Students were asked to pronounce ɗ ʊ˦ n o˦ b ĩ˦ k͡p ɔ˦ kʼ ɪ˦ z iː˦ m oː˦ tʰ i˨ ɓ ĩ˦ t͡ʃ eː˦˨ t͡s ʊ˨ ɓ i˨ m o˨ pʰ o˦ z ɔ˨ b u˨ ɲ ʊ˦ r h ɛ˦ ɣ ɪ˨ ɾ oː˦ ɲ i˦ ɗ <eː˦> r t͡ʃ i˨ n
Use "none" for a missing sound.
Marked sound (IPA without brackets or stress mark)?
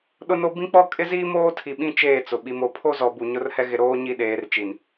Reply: eː˨˦